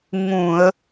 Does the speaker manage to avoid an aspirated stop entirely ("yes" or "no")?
yes